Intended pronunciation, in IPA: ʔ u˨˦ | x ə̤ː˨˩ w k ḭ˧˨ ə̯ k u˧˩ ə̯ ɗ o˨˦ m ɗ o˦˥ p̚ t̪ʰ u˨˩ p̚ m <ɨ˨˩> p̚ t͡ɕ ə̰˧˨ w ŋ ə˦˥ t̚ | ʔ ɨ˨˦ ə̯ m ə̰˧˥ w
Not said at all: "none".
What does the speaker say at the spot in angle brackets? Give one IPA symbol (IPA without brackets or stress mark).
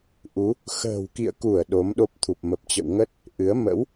ə˨˩